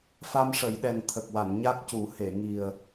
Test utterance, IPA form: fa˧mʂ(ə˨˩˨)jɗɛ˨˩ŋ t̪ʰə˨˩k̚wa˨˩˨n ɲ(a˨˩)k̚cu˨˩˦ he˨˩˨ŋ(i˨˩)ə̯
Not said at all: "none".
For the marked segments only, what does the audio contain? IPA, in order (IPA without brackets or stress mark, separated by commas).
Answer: ə˨˩˨, a˦˥, i˨˩